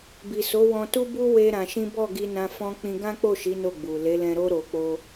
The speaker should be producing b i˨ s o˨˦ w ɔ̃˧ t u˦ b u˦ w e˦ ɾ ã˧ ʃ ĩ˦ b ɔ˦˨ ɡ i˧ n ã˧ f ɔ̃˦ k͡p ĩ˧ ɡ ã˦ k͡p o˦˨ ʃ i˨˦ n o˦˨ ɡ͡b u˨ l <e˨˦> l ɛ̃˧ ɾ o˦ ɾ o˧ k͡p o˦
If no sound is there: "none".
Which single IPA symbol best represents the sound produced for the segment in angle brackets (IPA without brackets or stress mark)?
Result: e˨˦